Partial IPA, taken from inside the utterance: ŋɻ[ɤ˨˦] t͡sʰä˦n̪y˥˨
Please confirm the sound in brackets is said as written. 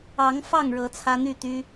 yes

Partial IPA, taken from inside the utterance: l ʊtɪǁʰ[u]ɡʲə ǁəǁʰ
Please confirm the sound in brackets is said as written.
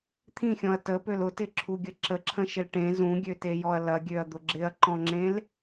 yes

